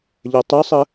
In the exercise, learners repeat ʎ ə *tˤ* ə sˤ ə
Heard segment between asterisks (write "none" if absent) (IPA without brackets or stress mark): tˤ